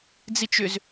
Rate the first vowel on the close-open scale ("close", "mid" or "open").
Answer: close